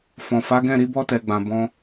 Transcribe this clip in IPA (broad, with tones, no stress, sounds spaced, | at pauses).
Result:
f ɔ̃˨ f a˨˦ ɡ ɛ̃˦˨ ɾ i˧ b ɔ˧ t ɛ˨ ɡ͡b ã˨ b ɔ̃˧